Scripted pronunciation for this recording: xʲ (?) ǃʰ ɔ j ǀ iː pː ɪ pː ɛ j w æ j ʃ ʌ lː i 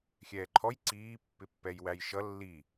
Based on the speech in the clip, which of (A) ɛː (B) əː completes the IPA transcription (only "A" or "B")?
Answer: A